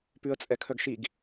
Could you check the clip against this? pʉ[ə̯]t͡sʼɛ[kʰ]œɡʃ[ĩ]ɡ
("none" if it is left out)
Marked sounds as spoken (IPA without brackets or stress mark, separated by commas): ə̯, kʰ, i